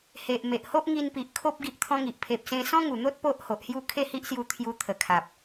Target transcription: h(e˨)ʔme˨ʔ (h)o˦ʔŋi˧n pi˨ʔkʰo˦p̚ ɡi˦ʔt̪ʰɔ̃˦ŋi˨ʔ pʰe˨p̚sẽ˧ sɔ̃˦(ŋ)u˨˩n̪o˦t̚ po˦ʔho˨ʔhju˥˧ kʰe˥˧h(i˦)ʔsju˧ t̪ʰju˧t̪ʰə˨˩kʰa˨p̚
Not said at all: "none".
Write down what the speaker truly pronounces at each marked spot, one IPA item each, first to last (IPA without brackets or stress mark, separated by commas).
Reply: e˨, h, ŋ, i˦